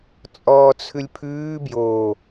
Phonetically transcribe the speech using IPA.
t͡sʼ ɔː t͡sʰ ʉ lʲ pʰ ʉː b j oː

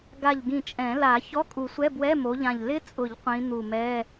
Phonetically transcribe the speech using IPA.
ɡ a˧˩ ʎ ɡ ĩ˧˩ t͡ʃʼ ɛ̃˨˩˦ l a˨˩˦ ç ɔ˧˥˧ kʼ u˨˩˦ sʷ ɛ˧˥˧ b w ɛ˧˥˧ m o˨˦ ʎ ã˧˩ ʎ l ɪ˦˥ t͡sʼ ʊ˨˩˦ ʎ qʷ ĩ˨˦ n̪ u˧˩ m ɛ˧˥˧

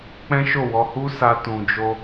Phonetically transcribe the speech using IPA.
k͡p ɛ̃˦ ʃ o˦˨ w ɔ˧ h u˦ s a˧ t ũ˨ d͡ʒ o˧

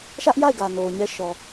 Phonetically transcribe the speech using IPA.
ʃ ä˦ ʔ j a˦˨ ɪ̯ ɡ ä˨ n o˨ ʊ̯ ɲ ɛ˦ ʃ ɔ˨

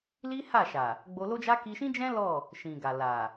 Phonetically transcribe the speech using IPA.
l i˦ h a˦˨ ʃ a˨ | ɡ͡b o˧ l o˦ d͡ʒ a˦ k i˧ ʃ ĩ˦ d͡ʒ ɛ̃˦ l ɔ˦˨ | ʃ ĩ˨ ɡ a˨ l a˨

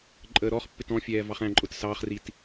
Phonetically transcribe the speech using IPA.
ǃʼ əː ɾ ɔ χ pː ɪ t ɔ̃ fʲ ɛː v ɑ χ æ̃ ǃʼ ʊ t s ɑ χ r i t

